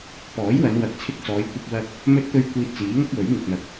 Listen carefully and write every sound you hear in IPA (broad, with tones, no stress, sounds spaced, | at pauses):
p ɔː˨˥ j w ɐ˨˧ n w ɐ˨ k̚ t͡sʰ ɪ˧ k̚ t͡s ɔː˨˧ j kʷ ɐ˧ p̚ w ɐ˧ k̚ | m ɵ˧ t̚ t̪ ɵ˧ ɥ kʷ iː˧ t̚ t͡s iː˨˥ ŋ ɐ˥ k̚ w ɵ˨˥ ɥ ŋ ɪ˨ k̚ n̪ ɐ˨˥ k̚